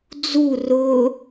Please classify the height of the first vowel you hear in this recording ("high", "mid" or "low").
high